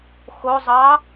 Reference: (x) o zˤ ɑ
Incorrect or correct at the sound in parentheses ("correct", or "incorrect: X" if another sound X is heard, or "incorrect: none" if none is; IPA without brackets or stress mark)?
correct